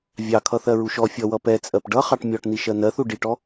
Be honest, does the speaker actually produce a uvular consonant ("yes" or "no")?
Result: yes